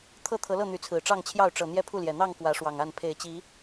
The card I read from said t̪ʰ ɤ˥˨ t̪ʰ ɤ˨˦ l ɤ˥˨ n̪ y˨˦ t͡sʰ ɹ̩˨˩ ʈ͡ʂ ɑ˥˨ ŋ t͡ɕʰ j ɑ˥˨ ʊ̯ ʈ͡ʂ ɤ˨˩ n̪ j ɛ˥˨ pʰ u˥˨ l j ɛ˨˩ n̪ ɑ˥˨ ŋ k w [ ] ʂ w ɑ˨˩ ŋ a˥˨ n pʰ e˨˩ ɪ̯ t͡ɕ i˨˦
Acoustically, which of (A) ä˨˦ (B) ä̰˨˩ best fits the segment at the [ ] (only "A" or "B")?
A